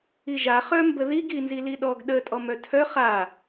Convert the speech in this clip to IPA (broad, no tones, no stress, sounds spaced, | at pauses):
i ʒ a χ œ m b ə ð i ɡ i n z i l i ɗ ɔ ɡ ɗ ə tʼ ɔ m œ tʰ œ χ a